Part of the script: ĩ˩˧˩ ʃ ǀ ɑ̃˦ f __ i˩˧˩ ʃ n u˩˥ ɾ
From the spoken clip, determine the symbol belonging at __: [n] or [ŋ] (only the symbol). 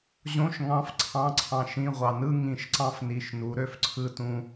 n